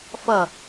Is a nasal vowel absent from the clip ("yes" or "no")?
yes